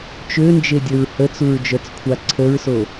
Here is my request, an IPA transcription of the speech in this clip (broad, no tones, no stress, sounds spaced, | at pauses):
t͡ʃ ø n d͡ʒ e dʲ ə ɹ h ə t͡s u ɹ d͡ʒ œ t͡s kʷʰ a ǀʰ ə ɹ s o